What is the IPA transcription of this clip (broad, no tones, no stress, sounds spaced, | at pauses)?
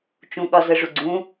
t͡ʃ ũ ɠ ɒ z ə ʐ u ɡ͡ǀ ũ